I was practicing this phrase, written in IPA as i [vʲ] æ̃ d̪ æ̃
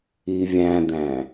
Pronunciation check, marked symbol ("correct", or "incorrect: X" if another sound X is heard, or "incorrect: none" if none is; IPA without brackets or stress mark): correct